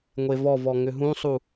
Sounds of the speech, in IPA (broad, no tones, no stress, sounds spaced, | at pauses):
ŋʷ e v ɔ v ɔ ŋ ʏ ɦ ũ sˤ u